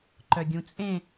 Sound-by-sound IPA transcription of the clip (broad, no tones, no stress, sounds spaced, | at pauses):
ǃ œ ɡʲ ũ t͡sʼ ẽ